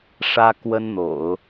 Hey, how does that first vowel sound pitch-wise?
high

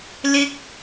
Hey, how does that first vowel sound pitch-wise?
high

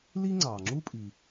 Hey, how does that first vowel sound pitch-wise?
high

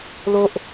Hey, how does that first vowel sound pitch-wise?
high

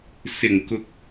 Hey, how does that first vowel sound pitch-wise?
low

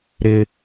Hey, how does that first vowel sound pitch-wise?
high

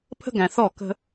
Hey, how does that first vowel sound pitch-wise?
high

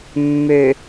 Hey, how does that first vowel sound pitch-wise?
low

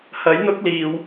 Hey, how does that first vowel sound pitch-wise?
rising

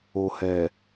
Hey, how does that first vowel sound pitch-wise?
low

